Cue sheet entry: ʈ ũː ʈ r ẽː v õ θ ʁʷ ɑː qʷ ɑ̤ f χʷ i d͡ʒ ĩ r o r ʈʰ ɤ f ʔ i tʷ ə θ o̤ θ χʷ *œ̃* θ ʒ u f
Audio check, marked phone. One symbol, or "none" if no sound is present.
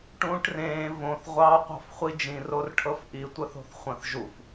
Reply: ə̃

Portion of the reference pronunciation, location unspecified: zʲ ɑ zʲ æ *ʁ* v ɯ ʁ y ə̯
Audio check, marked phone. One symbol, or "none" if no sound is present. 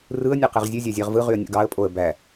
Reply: ʁ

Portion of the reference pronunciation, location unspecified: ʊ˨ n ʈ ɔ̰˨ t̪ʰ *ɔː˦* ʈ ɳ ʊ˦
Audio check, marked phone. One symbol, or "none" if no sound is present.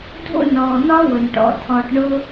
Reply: ɔː˧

